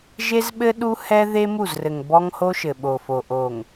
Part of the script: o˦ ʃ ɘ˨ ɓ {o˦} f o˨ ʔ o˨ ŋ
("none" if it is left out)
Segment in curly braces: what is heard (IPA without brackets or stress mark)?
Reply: o˨